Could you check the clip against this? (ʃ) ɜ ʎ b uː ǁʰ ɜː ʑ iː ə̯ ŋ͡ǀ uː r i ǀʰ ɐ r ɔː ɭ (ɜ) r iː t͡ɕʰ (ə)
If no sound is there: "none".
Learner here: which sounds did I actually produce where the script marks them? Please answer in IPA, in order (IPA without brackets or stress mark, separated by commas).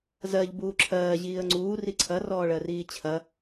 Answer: z, ɜ, ɐ